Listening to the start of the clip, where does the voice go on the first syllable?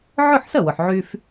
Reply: falling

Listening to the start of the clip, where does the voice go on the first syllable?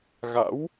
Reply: rising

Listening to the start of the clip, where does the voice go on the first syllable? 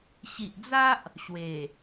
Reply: low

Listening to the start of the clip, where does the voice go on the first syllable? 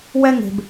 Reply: high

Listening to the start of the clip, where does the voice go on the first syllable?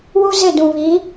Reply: high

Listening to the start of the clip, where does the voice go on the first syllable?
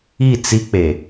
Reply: falling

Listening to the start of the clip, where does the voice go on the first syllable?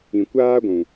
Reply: low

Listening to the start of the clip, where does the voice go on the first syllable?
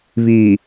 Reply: low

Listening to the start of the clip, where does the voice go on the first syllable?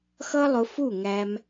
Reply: high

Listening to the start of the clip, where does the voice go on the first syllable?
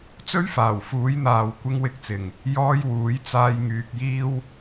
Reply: high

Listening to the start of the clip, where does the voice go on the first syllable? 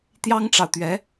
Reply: high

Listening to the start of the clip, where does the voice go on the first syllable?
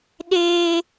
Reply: high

